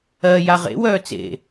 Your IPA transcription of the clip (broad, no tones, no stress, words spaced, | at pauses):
ɜ jaʁḛ wœːt͡sḛ